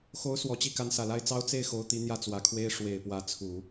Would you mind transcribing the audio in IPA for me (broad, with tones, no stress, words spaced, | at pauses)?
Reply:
xo˧˥ʊ̯ swɔ˨˩t͡ɕi˥˩ ka˧˥nsä˨˩la˥ɪ̯ t͡sɑ˥ʊ̯ t͡se˥˩ɪ̯ xo˧˥ʊ̯t̪i˧˥ n̪jä˥˩t͡swä˨˩kʰwe˥ɪ̯ ʂwe˨˩ɪ̯pwä˧˥t͡sʰu˨˩˦